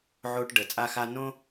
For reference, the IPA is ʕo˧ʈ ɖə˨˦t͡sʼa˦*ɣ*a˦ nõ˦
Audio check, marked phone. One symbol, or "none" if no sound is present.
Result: x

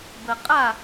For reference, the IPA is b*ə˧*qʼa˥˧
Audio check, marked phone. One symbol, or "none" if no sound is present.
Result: ə˧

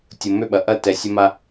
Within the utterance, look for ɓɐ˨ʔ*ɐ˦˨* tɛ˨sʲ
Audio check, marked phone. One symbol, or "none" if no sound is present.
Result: ɐ˦˨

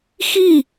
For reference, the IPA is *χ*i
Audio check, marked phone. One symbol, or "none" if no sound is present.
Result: x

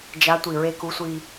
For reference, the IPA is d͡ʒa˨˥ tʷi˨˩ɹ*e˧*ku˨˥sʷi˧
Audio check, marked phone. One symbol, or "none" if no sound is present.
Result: e˧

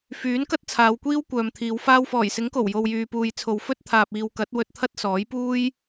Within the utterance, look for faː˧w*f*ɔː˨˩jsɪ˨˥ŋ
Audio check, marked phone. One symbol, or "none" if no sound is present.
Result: f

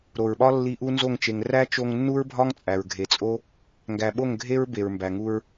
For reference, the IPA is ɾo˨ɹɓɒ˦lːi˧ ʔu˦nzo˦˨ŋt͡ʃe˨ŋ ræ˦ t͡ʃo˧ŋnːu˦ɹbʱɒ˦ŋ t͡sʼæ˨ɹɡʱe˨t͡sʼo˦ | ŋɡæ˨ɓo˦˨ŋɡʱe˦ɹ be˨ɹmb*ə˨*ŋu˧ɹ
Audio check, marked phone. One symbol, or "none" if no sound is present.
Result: æ˨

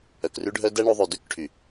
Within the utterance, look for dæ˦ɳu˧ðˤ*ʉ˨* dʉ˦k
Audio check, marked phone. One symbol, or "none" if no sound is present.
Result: ʉ˨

